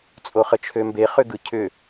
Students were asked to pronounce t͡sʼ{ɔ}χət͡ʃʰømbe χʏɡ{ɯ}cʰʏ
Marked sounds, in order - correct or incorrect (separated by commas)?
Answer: incorrect, correct